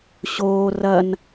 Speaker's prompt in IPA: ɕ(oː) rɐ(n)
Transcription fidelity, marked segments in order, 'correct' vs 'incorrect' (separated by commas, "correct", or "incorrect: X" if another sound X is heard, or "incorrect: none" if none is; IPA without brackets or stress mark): correct, correct